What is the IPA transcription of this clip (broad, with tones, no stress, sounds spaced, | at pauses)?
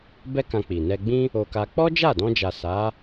b ɛ˦ k ã˧ k͡p i˨ n ɛ˧ ɡ͡b ĩ˦ | o˧ k a˧ k͡p ɔ˦ d͡ʒ a˦˨ d ɔ̃˧ d͡ʒ a˨ s a˨˦